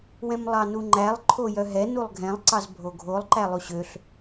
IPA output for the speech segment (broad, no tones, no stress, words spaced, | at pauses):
wɛ̃mlˠɑnuŋ͡ǃælˠ ǃʰojœɦɛ nulˠɡʱɛ̃lˠ ǀɑzbʱoɡʱolˠ ǃælˠuɕøɬ